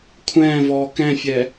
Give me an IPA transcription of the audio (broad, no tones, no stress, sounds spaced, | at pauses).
kʷʰ ɛ̃ː v ɔː k ɛ̃ fʲ ɛ